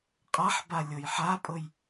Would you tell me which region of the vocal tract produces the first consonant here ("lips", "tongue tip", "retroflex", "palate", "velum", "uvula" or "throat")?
uvula